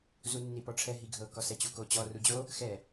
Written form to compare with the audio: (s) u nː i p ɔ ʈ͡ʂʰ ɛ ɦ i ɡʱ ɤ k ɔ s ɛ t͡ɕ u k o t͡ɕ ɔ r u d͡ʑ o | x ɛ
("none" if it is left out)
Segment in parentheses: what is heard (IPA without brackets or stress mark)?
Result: z